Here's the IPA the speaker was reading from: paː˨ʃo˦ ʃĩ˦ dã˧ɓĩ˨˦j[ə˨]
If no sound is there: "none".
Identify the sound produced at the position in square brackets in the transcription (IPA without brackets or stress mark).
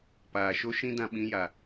a˨